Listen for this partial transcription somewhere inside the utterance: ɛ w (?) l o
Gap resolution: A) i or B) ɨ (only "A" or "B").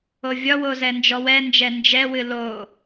B